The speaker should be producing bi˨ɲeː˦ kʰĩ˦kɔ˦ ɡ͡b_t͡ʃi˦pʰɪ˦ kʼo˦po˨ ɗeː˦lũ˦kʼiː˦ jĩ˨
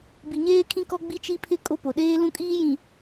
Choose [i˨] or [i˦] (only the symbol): i˦